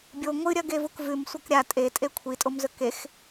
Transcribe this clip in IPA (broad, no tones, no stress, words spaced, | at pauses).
bʲo ŋʷɨɾʲɐɡevuk vʉmsʷɐk ɾʲa tʼetʼe kʷʰitʼomzɵ kex